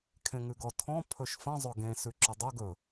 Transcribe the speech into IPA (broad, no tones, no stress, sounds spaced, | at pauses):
kʰ ẽ ŋ ʉ ɡ ɔ tʰ ɔ̃ pʰ ɵ ʃ f ə̃ zˤ ɵ ɡ ẽ s ʉ ǁ ɵ dˤ ɵ ɡ ɵ